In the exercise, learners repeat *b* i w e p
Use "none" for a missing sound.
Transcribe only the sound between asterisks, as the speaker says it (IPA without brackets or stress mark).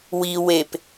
w